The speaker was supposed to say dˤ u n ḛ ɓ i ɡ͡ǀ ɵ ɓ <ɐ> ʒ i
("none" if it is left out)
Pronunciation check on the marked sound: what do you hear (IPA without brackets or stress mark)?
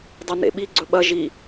ɐ